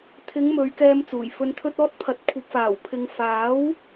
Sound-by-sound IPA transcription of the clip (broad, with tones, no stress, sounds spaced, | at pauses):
t̪ʰ ɪ˨˧ ŋ m ɵ˨˧ ɥ k ɛː˧ m t͡s uː˨˩ j f ɵ˨ n t̪ʰ ɵ˧ t̚ ɔː˧ t̚ pʰ ɐ˨˥ t̚ kʷʰ ɐ˨ p̚ f aː˨˩ w pʰ ɪ˨ ŋ f aː˨˥ w